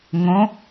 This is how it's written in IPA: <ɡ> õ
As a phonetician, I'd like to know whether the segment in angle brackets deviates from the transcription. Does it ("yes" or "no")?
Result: yes